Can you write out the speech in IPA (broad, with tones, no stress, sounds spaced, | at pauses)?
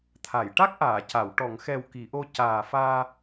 t̪ʰ a˨˩˨ j ʈ a˦˥ k̚ ʔ aː˨˩˨ c a˨˩˨ w ʈ ɔ˨˩˨ ŋ x ɛ˨˩ w k i˨˩˨ ʔ o˧ c aː˨˩ f aː˧